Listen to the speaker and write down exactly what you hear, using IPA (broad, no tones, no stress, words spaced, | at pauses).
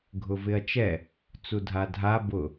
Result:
ɡʱʊvɪɐ̯t͡ʃɛ | t͡sudʱadʱa bʊ